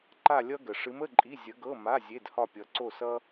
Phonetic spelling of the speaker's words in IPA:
ǃ a˥˧ lʲ ʌ˥ ɡ ə˨ ʂ ɨ˧˥ m ə˧˥˧ ǃʼ i˧˥˧ zʲ ə˧˥ ɡ ɤ˧˥˧ m a˧˥˧ zʲ e˧˥˧ d h ɒ˥˧ pʲ ʌ˧˥ ǀ o˥˧ s ʌ˥

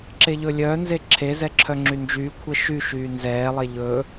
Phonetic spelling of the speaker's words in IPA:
ǁ e ʎ ɵ lʲ œː n z e ǁʰ e z ɛ ǁʰ œ ŋ͡ǁ y n d͡ʒ yː kʷʰ ɛ ʃ y ʃ yː n z ɛː lˠ e ʎ ɵː

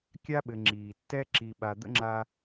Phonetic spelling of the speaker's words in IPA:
kʲ a˥ ɓ ɘ˨ ŋ͡ǁ iː˩ tː ɛ˥ ǁ i˨ ɓ a˨ d̪ ə̰˥ ŋ͡ǁ a˦

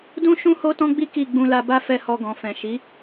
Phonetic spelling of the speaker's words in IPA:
d ũ˦ ʃ ũ˦ h o˦ t ɔ̃˦ ɡ͡b i˦ k i˦˨ ɡ͡b ũ˧ l a˧ b a˦ f ɛ˦˨ h ɔ˧ ɡ ɔ̃˨ f ɛ̃˨ ʃ i˨˦

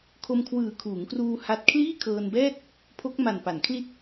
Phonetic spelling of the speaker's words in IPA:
kʰ o˧ m kʰ w ɯː˨˩ kʰ uː˩˦ ŋ k r uː˧ h a˦˥ t̚ kʰ l iː˥˩ kʰ ɤː˧ n b ɛː˥˩ t̚ | pʰ o˦˥ k̚ m a˨˩ n p a˩˦ n kʰ l i˥˩ t̚

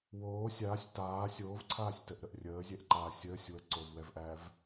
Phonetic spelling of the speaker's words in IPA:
w oː sʲ aː sʲ t aː sʲ oː v ǀʰ aː sʲ t ə ʔ ɾ ə ʔ rʲ əː zʲ ɛ ʔ ǃ aː sʲ əː sʲ w ə ǀ o v w ɛ v ʔ æ v

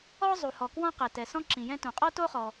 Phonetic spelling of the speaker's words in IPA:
ɔ˥ zˤ u˩ h ɔ˩ k w ɔ̃˥ q ɛ˩ t ɛ˩ s ɔ̃˥ ǁ ĩ˩ j ɛ̃˥ t ũ˩ qʼ ɔ˥ t o˥ χ ɔ˩

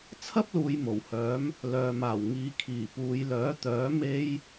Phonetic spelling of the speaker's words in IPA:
t͡sʰ ɐ˥ p̚ l uː˨ j m o˨˩ w h œː˨˥ m | l œː˨ m aː˨˩ w ŋ iː˨˧ kʰ iː˨˩ p uː˨˧ j l œː˨˥ t̪ œː˨˥ m e˥ j

